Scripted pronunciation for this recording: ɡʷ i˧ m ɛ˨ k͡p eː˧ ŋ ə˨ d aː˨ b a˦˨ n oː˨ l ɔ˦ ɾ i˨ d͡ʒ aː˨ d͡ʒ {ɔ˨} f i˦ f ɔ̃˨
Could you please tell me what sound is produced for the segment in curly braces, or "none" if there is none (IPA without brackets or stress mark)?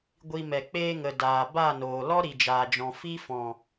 ɔ̃˨